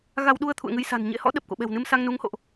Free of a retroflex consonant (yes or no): yes